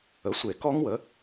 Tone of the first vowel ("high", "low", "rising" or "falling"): rising